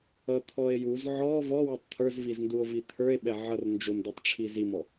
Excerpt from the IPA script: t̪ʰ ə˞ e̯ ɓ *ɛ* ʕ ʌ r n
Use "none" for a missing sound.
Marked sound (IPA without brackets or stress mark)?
ɛ